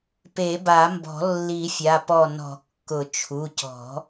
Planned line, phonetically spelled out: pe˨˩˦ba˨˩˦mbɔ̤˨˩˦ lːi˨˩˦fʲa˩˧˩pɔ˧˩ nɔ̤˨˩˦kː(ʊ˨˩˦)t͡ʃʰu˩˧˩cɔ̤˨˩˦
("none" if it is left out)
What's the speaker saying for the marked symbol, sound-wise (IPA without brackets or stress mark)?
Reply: ʊ˨˩˦